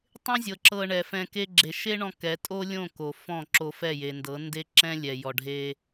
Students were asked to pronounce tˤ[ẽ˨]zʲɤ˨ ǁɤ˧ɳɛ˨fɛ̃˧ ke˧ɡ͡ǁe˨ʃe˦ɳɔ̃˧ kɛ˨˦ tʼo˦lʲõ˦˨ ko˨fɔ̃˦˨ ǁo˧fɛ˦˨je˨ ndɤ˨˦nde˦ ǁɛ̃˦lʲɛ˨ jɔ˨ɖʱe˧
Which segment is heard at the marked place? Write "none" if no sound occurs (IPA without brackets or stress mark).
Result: ẽ˦